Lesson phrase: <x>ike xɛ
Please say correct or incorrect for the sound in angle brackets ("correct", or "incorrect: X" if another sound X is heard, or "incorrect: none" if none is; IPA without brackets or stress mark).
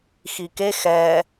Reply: correct